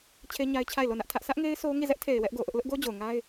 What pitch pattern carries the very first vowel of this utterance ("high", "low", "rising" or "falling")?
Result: high